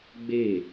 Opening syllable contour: falling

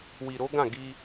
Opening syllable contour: low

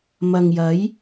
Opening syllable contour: low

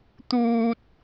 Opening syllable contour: high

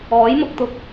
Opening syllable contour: rising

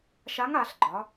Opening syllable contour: rising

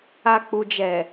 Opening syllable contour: low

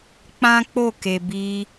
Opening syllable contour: high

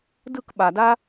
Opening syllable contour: falling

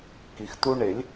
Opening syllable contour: low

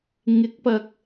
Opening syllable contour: rising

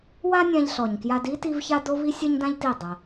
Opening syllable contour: high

